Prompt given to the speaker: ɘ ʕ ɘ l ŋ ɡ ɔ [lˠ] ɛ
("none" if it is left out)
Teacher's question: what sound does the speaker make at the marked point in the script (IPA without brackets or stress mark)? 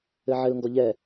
ʎ